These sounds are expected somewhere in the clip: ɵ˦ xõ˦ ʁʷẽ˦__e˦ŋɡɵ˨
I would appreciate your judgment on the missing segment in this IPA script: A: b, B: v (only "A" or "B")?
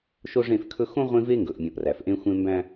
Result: B